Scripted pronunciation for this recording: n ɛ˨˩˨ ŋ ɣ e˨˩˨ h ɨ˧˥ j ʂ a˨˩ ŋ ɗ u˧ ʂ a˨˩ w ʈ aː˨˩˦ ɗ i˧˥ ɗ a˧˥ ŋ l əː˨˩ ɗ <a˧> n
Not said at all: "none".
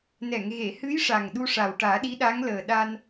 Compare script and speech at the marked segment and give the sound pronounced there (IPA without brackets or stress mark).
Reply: a˧